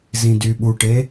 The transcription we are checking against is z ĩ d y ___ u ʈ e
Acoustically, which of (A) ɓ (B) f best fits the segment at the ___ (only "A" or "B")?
A